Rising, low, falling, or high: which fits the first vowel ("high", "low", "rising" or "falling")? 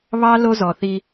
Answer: high